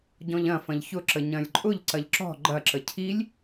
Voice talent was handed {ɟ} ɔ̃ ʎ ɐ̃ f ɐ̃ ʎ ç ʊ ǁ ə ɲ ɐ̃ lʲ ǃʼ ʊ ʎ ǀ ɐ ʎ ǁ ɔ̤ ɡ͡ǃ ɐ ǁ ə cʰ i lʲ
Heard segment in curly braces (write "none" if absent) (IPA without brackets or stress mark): ɟ